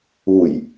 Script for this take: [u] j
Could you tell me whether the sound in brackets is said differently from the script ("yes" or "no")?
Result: no